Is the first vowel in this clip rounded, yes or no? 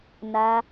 no